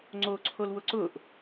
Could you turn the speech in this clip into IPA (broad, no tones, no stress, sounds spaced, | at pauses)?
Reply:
ŋ͡ǀ o ǀʰ o l w ʊ ǀ ʊ ʔ